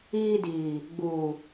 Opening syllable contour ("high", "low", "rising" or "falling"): high